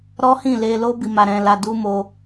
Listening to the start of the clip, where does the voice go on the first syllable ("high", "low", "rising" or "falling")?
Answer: high